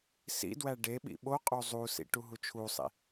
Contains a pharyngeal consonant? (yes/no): no